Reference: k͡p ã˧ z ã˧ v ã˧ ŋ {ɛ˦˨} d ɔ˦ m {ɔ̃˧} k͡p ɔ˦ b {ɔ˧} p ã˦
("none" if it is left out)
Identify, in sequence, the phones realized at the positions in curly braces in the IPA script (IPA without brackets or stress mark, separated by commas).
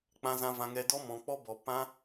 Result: ɛ˧, ɔ̃˧, ɔ˧